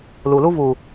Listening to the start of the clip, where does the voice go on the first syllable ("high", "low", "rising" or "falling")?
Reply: low